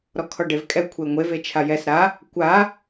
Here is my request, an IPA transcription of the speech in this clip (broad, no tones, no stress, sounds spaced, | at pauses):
ɾ ɔ kʰ ɔ ɖ e v kʼ ɛ kʷʰ e ŋʷ e v e t͡ʃʰ a j ɛ s ɾ a | kʷ a